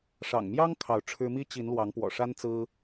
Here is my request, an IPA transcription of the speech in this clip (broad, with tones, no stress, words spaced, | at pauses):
ʂɑ̰˨˩ŋmjɑ˦ŋ kʰɑ˨˦ʊ̯ ʈ͡ʂʰɻ̩˦ mi˦t͡ɕi˨˦n lwɑ˨˦ŋpwɔ̰˨˩ʂa˦n t͡sɹ̩˦